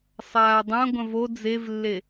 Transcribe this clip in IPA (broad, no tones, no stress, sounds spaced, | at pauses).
sˤ aː dˤ ɐ̃ ɡʷ ɐ̃ v o d͡z e v lː e